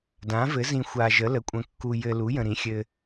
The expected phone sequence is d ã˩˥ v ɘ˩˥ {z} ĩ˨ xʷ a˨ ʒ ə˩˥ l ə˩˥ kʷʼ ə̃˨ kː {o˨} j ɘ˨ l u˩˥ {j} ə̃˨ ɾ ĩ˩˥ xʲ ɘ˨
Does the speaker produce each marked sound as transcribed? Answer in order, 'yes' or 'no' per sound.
yes, no, yes

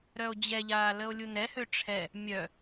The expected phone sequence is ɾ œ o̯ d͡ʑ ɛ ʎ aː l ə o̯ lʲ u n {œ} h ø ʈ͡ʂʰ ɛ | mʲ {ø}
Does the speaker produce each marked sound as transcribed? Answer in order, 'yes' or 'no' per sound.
no, no

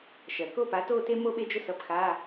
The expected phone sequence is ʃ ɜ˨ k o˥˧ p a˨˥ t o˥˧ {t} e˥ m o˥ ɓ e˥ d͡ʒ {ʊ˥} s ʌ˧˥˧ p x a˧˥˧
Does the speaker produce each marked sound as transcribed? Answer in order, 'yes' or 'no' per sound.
yes, yes

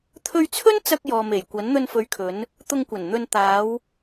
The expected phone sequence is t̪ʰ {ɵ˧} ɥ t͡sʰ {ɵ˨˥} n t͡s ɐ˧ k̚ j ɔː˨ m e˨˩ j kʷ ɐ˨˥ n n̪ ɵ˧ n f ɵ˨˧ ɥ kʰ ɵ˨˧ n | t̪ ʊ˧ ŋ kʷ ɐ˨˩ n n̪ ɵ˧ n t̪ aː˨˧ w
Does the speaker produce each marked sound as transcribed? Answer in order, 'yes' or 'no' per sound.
yes, no

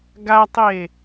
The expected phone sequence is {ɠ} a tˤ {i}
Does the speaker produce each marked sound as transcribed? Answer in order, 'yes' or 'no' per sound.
no, no

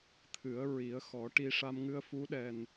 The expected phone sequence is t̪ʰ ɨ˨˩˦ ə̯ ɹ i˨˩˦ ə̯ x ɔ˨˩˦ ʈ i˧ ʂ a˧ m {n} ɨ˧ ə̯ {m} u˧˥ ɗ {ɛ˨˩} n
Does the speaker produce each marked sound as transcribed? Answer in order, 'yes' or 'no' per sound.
no, no, yes

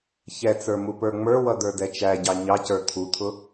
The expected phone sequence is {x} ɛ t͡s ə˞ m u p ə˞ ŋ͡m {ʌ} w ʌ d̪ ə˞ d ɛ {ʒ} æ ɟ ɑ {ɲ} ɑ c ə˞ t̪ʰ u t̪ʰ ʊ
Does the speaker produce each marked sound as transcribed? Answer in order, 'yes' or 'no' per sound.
no, no, no, yes

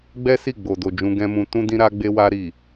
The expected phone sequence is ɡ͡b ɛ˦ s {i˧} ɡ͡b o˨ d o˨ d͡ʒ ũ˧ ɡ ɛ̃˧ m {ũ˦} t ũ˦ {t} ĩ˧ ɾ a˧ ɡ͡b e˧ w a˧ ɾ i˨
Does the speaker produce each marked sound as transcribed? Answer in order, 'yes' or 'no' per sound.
no, no, no

